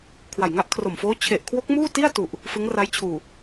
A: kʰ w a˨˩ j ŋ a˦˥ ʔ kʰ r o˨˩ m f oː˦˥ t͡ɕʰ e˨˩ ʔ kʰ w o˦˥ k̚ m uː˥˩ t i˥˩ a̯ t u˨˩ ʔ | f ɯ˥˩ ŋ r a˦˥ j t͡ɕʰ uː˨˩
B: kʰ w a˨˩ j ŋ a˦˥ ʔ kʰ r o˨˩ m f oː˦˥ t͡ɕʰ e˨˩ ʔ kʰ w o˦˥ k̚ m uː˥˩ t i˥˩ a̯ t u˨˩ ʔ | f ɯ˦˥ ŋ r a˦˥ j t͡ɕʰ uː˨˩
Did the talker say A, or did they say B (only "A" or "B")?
B